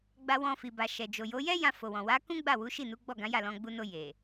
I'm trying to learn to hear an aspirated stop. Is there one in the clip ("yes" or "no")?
no